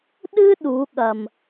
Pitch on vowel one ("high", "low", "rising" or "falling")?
high